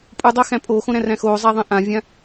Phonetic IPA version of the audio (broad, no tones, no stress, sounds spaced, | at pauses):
pʼ u dˤ æ x æ̃ pʼ oː x õ ɾ æ̃ r æ̃ x oː zˤ æ ðˤ ẽ ʔ ã vʲ ã